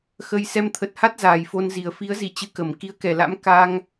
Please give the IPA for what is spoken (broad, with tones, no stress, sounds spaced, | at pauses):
x ə˧ j s ɛ˧ m t̪ʰ ə˨˩ t̚ h a˦˥ t̚ z aː˨˩ j f o˧ n z i˨˩ ə̯ f i˨˦ ə̯ z i˧˩ t͡ɕ ɨ˧ k ə˧˩ m k i˨˦ ə̯ k ɛ˧˩ l a̰˧˥ m k a˧ ŋ